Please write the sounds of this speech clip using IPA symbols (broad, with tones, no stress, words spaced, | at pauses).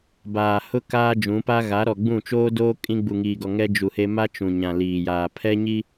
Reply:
baː˨hʊ˦ kaː˦d͡ʒũ˨˦pa˦ ɣa˨˦ɾɔ˨ɡ͡bũ˦˨t͡ʃoː˦ doː˦ kʼĩ˦ ɡ͡bu˨ŋiː˨ɡɔ˨ ŋɛ˦d͡ʒu˨he˦ ma˦t͡ʃũ˨ ɲã˨liː˨jaː˨ pʰɛ˦ɲi˦